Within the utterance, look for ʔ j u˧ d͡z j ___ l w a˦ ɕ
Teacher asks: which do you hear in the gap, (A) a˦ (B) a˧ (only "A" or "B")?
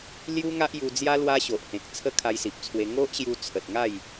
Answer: A